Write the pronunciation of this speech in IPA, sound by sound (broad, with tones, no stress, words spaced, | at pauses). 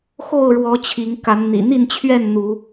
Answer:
xo˥˨ʊ̯ɻwɔ˨˦ t͡ɕʰi˨˦ŋka˨˦nn̪ḭ˨˩ n̪i˥˨nt͡ɕʰɥɛ˥˨n n̪u˨˦